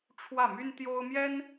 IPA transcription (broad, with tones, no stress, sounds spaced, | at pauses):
ʈ͡ʂʰ w ä˥˨ m y˦ n t̪ j o˦ ʊ̯ m j ɛ˦ n